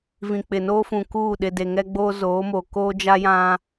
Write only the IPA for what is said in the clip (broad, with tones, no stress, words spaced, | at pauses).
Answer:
vĩ˨k͡pɪ˨noː˦fũ˨ kuː˦˨ɗɪ˨de˨ ŋɛ˦ɡ͡boː˦zoː˨˦mo˨ koː˦d͡ʒa˦jã˦